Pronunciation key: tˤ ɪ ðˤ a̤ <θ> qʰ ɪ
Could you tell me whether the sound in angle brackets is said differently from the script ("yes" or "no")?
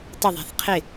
no